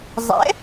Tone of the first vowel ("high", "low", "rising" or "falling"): rising